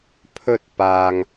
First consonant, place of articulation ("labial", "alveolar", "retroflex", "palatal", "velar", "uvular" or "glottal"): labial